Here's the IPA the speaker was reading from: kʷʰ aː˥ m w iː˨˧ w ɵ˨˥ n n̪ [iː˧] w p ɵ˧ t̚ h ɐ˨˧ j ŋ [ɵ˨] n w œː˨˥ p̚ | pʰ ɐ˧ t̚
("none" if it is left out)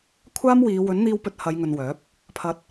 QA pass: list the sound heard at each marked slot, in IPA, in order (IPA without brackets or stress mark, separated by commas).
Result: iː˧, ɵ˨